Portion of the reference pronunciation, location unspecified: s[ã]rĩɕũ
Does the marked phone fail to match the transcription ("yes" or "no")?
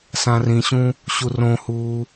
no